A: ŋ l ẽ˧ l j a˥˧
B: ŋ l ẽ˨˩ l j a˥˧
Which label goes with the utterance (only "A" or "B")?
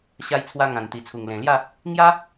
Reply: B